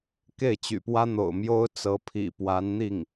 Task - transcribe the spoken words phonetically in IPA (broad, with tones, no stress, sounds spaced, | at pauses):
k e˥˩ ɪ̯ t͡ɕ y̰˨˩ p w ä˥ n̪ o̰˨˩ ʊ̯ m j o˥ ʊ̯ t͡s ɤ˧˥ pʰ ḭ˨˩ p w a˧˥ n n̪ i˥˩ ŋ